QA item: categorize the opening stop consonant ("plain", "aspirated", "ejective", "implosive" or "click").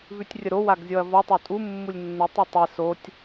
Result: plain